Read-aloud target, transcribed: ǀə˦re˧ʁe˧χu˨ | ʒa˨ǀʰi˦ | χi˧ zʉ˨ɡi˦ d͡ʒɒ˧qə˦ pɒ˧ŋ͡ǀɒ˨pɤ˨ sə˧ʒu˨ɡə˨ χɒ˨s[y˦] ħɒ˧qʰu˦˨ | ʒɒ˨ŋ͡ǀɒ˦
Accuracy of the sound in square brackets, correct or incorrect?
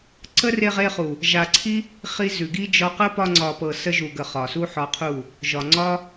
incorrect: u˦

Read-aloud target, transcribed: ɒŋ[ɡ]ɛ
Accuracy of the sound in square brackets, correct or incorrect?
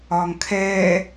incorrect: kʰ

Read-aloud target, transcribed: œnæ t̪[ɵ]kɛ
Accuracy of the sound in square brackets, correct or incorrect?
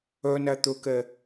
correct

